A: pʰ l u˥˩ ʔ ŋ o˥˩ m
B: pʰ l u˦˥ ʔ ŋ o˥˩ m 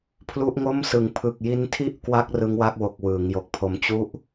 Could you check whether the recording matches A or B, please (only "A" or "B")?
B